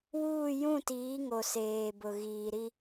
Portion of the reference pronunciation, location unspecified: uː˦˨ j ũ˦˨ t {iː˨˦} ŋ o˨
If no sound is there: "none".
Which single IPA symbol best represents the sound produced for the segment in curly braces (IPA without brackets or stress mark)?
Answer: iː˨˦